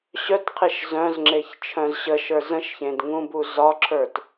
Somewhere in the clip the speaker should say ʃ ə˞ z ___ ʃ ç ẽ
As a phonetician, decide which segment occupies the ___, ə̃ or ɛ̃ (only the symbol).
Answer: ə̃